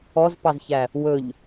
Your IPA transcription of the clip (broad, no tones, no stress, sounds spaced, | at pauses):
ɔ z p ɑ z ç æ | w ɵ ʎ